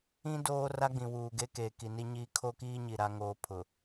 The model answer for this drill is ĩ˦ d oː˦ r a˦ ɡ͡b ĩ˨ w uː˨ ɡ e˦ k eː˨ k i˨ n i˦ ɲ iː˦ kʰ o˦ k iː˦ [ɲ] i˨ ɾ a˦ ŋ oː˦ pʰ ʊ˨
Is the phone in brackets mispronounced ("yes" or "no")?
no